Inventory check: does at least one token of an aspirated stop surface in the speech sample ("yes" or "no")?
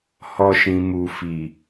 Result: no